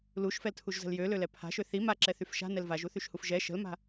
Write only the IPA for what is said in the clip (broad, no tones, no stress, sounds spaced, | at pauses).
l u ʃ f ɛ l tʰ u ʒ z ə̤ l j ø l ø l ɛ pʰ a̤ ʃ ø θ i m a ǁ ɛ θ y f ʃ a̤ n ɛ l v a ʒ u θ y ʃ h u f ʒ ɛ ʃ ə̤ l m a̤